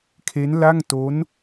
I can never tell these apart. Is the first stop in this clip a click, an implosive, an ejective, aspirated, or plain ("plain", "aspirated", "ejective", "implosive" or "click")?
aspirated